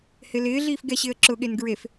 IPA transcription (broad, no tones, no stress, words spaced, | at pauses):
hɪlɪː ɮiːfɡɛɕɪːə̯ǁʊ ɠenɡɹef